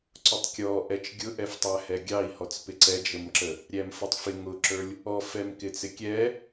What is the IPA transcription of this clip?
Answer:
ǀʊtˤkʲɔʔɛt͡ʃ ɡʲʊʔɛftˤæhɛ ɡʲɑi̯hɔt͡s pɪǀɛd͡ʒəmǁə | ɾʲæmfʊtˤfɪ ŋʊǁə˞lʲ | ɔfɛmkɪ t͡sɪkʲɛ

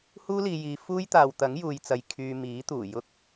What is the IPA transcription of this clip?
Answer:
huː˥liː˨jiː˨ fuː˥jt̪aː˨wt̪ɐ˨˥ŋ juː˨jt͡sɐ˨j kʰyː˨ miː˨˥t̪uː˨˩ jʊ˧k̚

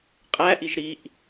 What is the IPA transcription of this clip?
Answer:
qʼæʔiʒ ɾiʔ

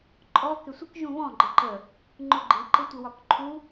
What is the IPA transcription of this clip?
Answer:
ǃʼɔ kɪsʷɪk ʒũβɔ̃ ɡ͡ǃɪǃə | ŋ͡ǃʊɡ͡ǃi ǃɪtʷɪwɒkǃʰu

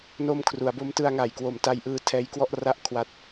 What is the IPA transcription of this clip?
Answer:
no˧mkʰru˩˦a̯bo˦˥m tɯ˧a̯ŋa˨˩jkwo˨˩m ta˧jʔɯː˦˥tʰɛː˦˥jkwɔ˥˩ʔ ra˥˩ʔkʰwa˦˥t̚

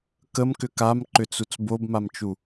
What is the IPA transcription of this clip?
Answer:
kəmkʏ kamǃʏt͡sut͡s bobmamt͡ʃu

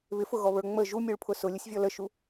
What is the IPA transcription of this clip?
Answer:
βɪfʊɣɔβə˞ ŋ͡mə ʒumʲuɭpʰʊ sʊlʲəsʲvʲɔ ləʃu

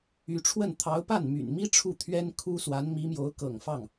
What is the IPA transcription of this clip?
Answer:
y˧˥ʈ͡ʂʰwə˥˩n t̪ʰɑ˧˥ʊ̯pa˥˩nmy̰˨˩nmi˥ ʈ͡ʂʰu˥˩t̪ʰɥɛ˥n kʰu˥swa˧˥n mi˧˥mjo˧˥ʊ̯ kɤ̰˨˩ŋfɑ˥˩ŋ

